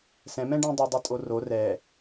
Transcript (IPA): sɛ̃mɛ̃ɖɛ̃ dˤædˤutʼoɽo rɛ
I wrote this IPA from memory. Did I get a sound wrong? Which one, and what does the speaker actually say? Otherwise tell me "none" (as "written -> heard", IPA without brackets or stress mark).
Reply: ɽ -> r